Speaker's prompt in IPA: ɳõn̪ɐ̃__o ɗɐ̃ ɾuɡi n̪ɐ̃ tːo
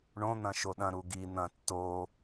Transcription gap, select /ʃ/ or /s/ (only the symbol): ʃ